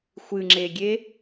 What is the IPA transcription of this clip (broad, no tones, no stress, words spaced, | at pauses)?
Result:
xʷɨŋ͡ǁeɡʲe